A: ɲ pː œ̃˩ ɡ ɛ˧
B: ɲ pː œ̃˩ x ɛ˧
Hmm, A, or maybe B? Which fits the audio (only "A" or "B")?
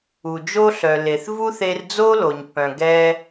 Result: A